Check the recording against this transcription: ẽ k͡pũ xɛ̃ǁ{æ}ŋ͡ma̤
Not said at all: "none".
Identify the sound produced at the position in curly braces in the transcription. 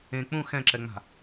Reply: ɛ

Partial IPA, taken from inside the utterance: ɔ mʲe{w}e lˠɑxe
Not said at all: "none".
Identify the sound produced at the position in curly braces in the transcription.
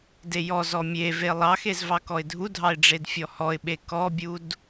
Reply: v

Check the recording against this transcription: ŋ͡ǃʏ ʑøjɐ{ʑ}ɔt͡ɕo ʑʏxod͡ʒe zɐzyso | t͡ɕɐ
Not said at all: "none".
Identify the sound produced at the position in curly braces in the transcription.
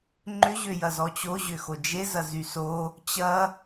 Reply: z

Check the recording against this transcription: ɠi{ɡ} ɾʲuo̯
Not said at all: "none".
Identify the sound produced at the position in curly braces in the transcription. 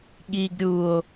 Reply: ɡ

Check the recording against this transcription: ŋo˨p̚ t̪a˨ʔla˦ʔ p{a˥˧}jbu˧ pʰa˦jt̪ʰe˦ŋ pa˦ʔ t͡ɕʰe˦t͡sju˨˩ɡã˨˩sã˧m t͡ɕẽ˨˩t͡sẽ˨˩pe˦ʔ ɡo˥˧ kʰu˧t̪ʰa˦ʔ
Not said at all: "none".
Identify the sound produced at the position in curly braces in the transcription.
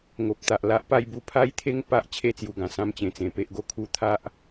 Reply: a˥˧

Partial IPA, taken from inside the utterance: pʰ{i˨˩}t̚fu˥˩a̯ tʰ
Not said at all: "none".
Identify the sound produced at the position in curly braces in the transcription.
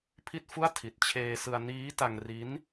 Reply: i˥˩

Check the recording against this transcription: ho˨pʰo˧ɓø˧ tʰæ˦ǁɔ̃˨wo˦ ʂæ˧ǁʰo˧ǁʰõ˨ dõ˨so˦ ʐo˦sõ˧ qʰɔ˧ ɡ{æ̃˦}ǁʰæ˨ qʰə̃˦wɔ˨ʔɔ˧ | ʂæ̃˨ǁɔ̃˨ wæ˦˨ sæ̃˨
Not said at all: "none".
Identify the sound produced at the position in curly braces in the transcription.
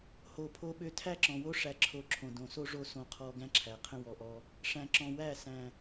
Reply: æ̃˦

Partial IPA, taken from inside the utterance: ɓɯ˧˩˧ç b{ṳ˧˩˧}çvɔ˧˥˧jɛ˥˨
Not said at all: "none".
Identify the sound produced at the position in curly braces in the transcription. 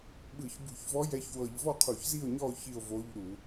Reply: ṳ˧˩˧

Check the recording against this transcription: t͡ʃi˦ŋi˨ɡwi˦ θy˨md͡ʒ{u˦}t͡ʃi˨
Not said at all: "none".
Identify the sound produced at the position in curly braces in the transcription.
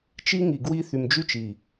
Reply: y˦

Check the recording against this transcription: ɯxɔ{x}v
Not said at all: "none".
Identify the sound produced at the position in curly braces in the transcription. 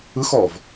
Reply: none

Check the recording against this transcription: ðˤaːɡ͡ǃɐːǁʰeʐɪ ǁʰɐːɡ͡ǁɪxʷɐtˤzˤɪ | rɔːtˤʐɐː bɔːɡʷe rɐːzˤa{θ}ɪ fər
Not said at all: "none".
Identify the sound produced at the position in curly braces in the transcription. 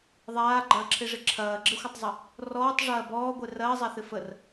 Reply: θ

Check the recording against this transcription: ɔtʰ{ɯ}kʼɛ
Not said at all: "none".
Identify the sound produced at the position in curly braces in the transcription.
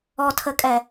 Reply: ə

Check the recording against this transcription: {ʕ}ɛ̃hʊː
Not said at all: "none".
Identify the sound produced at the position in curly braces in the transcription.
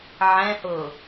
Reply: ʕ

